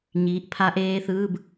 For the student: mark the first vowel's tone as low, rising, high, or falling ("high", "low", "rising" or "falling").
rising